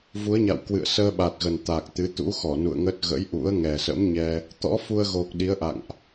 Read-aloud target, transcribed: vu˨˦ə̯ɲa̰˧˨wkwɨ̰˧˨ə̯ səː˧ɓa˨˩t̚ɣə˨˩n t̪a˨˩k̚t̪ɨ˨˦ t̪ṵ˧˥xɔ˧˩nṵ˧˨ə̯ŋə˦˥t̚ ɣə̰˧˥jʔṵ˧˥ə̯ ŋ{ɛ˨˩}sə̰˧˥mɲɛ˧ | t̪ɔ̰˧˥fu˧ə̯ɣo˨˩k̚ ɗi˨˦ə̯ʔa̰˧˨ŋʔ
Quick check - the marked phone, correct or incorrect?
correct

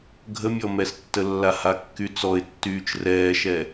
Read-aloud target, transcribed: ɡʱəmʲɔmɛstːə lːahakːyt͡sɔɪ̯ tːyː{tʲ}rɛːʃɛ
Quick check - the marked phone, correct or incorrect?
incorrect: t͡ʃ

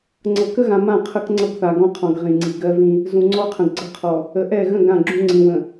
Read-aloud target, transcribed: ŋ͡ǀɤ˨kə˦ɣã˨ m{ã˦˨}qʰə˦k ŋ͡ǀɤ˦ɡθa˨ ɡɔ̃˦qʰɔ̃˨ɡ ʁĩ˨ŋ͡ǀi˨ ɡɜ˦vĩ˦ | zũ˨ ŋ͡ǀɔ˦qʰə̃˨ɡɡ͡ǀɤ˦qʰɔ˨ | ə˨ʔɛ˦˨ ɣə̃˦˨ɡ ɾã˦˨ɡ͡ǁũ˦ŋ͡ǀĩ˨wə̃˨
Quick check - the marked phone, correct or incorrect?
correct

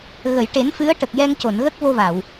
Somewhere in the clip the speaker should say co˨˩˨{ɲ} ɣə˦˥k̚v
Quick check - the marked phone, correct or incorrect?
incorrect: n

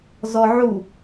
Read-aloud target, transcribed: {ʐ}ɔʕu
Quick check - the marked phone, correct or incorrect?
incorrect: z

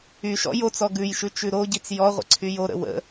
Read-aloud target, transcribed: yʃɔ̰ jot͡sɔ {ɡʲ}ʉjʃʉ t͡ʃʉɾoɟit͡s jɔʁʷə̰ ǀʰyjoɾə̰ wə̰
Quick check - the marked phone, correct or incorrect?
incorrect: ɡ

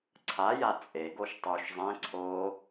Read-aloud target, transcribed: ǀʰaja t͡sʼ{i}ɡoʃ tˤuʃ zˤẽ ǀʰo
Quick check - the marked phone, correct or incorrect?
incorrect: e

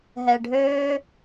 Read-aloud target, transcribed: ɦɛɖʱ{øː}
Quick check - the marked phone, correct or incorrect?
correct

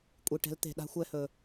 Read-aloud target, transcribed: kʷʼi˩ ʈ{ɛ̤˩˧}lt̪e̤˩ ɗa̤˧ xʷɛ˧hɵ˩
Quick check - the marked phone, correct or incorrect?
correct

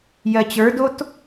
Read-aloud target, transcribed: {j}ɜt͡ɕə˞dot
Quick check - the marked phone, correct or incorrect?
correct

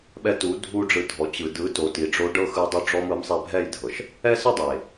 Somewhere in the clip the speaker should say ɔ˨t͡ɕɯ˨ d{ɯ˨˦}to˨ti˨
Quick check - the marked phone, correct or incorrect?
correct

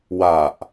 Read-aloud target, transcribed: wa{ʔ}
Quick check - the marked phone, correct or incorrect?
correct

